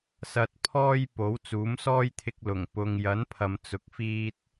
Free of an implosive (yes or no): yes